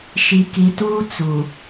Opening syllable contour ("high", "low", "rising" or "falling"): low